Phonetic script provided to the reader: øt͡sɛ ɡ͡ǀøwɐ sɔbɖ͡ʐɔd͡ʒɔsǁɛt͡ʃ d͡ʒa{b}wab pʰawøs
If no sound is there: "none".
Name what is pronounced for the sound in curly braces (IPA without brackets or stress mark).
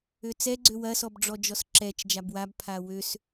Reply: b